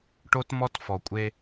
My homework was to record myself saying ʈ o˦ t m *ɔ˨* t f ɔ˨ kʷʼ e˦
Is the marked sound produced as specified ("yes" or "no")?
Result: no